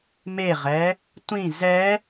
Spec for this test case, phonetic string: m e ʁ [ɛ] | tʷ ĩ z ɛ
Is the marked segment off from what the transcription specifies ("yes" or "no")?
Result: no